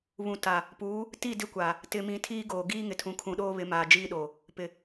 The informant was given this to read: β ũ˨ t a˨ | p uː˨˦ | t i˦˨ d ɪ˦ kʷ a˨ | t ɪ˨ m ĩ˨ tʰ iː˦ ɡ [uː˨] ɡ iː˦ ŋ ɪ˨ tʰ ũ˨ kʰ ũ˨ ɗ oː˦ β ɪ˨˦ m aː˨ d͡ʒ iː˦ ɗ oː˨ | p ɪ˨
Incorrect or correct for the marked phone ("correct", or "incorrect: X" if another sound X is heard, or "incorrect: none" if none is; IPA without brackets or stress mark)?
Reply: incorrect: oː˨